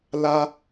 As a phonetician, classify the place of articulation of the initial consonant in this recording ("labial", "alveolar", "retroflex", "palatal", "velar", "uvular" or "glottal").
alveolar